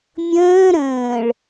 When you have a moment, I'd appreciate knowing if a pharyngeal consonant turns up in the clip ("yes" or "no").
no